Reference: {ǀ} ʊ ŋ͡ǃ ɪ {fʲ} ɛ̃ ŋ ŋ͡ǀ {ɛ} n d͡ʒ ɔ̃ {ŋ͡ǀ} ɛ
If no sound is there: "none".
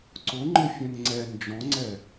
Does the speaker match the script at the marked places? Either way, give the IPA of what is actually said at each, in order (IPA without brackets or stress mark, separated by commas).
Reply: ǀ, fʲ, ɛ, ŋ͡ǀ